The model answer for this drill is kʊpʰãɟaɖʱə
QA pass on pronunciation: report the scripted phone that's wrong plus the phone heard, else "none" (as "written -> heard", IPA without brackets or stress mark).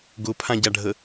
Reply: k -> ɡ